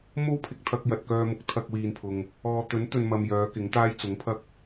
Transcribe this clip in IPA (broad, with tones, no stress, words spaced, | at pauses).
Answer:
mo˥wpʰɪ˨k̚ t̪ʰɐ˧k̚jɐ˨t̚kœː˧mʊ˨˥k̚ t̪ʰɐ˧k̚wiː˨npʰʊ˨ŋ | ɔː˨t̪ɵ˨˥nt̪ɵ˨n mɐ˧m jœː˨˧kɪ˨˥ŋt̪aː˥j t͡sʊ˨˥ŋpʰɐ˥k̚